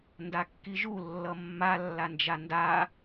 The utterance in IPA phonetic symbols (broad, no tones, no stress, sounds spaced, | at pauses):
n d a kː i ʒ u lː ʌ mː a lː a n d͡ʒ a n d a